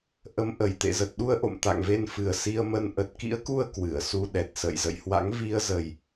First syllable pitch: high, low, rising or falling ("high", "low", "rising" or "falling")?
rising